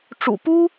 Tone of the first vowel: low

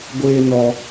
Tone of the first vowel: high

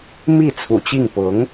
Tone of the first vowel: falling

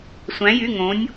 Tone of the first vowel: rising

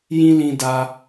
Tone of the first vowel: high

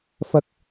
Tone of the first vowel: high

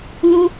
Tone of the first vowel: high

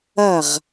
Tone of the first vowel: falling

